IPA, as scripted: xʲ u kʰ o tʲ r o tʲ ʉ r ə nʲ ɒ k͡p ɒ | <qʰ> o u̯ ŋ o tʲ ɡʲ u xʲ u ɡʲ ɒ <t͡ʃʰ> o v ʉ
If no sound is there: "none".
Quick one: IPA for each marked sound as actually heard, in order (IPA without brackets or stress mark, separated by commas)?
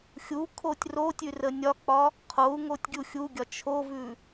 qʰ, t͡ʃʰ